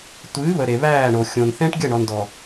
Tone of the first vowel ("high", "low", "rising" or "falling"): rising